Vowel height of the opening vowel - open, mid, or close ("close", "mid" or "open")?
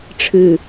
close